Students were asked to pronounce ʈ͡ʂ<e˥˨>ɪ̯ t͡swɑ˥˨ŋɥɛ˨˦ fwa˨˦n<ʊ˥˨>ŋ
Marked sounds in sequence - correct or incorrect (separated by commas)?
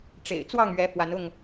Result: incorrect, correct